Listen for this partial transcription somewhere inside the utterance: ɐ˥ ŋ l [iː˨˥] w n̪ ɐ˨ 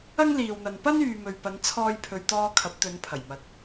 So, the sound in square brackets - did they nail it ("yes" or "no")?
no